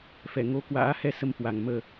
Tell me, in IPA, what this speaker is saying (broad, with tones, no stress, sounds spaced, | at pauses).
f ɛ˧˩ ŋ o˧ k w a̰ː˧˥ h ɛ˧ s ə˧ m h w a˨˩ ŋ m əː˨˩